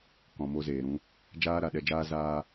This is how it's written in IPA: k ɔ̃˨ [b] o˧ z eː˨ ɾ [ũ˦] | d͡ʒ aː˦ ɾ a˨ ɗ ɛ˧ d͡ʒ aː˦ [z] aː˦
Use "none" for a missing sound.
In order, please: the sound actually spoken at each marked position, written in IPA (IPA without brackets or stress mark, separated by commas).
m, ũ˦, z